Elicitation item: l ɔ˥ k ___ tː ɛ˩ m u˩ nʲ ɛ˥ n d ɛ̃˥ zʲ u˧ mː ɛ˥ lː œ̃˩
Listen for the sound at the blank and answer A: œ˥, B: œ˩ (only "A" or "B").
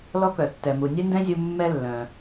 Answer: B